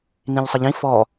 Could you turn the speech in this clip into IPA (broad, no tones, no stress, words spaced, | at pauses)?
nĩʎsˤʌʎĩ fɔ